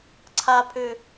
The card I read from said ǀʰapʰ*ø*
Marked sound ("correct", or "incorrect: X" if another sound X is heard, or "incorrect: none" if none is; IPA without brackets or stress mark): correct